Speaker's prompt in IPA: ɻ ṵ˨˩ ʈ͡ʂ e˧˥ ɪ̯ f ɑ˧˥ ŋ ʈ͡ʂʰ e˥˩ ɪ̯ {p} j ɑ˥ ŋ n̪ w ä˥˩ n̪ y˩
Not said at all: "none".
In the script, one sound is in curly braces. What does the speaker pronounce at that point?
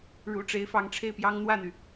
p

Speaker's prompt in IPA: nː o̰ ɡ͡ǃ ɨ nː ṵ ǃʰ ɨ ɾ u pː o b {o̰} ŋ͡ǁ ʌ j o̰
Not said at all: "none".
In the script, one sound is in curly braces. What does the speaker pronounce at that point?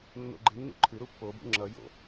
ṵ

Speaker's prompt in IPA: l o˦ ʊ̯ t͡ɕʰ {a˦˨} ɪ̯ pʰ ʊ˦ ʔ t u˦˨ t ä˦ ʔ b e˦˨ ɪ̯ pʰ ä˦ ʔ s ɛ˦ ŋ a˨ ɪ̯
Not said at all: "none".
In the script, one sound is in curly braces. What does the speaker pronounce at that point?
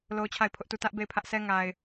a˦˨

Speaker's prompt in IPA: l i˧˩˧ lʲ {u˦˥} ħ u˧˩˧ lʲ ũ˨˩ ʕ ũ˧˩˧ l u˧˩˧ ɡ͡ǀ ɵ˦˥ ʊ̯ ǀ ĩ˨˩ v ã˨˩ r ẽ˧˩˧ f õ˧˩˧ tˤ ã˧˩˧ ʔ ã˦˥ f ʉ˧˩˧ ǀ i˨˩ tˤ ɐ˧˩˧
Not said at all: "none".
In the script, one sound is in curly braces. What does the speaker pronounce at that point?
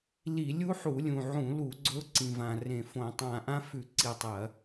u˦˥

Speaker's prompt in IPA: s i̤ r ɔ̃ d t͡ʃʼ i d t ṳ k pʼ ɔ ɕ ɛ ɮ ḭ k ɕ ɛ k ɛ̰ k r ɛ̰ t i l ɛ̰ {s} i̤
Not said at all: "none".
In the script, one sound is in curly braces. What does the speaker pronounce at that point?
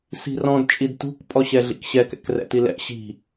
ɕ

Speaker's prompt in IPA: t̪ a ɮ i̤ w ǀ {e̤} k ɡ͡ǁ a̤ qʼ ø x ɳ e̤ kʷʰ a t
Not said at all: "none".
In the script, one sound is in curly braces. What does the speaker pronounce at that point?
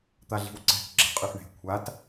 ɛ̤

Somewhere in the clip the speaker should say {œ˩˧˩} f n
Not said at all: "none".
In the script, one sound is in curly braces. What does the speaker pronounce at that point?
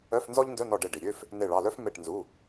œ˧˥˧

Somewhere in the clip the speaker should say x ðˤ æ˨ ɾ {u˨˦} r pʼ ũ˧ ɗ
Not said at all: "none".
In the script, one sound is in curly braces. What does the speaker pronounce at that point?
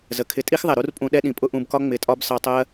u˦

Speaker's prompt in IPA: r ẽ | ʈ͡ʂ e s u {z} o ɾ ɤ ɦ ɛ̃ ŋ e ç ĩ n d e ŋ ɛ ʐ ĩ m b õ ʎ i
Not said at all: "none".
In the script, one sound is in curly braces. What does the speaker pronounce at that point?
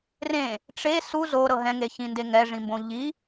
z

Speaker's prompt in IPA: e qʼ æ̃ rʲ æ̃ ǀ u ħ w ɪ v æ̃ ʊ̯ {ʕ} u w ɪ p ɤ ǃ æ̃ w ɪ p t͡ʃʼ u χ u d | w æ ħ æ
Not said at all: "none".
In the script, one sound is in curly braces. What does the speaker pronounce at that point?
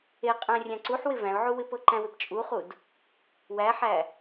ʕ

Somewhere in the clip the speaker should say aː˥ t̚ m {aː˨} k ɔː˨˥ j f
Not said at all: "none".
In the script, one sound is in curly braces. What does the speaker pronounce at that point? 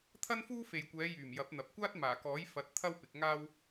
aː˨˩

